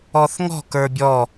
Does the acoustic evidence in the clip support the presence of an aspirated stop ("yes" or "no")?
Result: no